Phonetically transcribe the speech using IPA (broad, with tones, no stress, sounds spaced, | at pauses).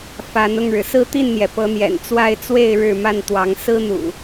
f a˨˦ n ʊ˥˨ ŋ ɻ ɻ̩˩ s ɹ̩˦ t̪ i˥˨ n n̪ j ɛ˩ p ɤ˨˦ n̪ j ɛ̰˨˩ n t͡s w a˥˨ ɪ̯ t͡s w e˥˨ ɪ̯ ɻ ɻ̩˥˨ m a˥˨ n t̪ w ɑ˨˦ ŋ s ɹ̩˦ n̪ ṵ˨˩